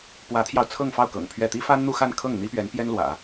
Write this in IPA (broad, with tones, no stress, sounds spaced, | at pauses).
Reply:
p w ä˧˥ t̪ʰ j ɑ˧ ʊ̯ t͡sʰ ɤ˥˧ ŋ f ɑ˥˩ ʊ̯ k ɤ̰˨˩ ŋ pʰ ɥ ɛ˥˩ t̪ i˥ f a˥ n n̪ u˥˧ x a˥˧ n kʰ ɤ˥˩ ŋ n̪ i˥ p ɥ ɛ˧˥ n p j ɛ˥ n l w ä̰˨˩˦